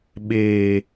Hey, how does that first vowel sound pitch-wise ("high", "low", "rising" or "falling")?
low